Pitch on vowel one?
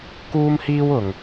high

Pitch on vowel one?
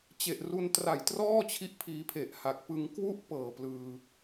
low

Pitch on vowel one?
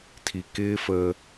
low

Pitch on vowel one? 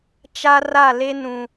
high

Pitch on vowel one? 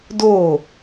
falling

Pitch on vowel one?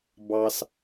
low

